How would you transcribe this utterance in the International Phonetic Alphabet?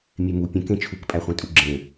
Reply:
mʲ e m u pʲ ə̃ k ẽ t͡ʃʰ u k pʼ æ χʷ ẽ tʼ u ɡ͡ǁ ẽ

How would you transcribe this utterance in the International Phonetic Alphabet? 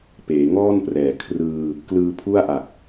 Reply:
p eː˩˦ ŋ ɔː˥˩ n p r ɛː˩˦ kʰ r ɯː˧ | k l ɯː˧ pʰ u˥˩ a̯ ʔ a˨˩ k̚

